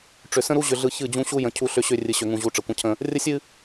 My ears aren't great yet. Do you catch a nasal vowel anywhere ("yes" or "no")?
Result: yes